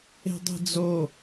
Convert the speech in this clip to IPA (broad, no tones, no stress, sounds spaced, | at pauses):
e̤ dˤ e̤ d͡z o